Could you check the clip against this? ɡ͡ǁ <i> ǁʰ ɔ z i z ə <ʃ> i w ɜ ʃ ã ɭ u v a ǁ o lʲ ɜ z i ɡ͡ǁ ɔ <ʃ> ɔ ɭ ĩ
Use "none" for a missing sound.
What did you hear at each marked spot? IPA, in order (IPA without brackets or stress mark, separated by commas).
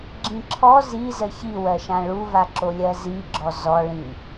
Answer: ĩ, ç, z